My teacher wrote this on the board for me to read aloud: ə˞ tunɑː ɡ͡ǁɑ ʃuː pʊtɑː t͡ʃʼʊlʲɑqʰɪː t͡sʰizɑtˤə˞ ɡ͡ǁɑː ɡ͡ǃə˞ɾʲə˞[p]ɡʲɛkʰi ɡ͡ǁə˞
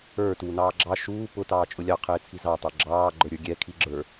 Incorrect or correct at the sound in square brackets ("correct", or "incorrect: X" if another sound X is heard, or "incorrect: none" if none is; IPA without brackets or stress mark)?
incorrect: none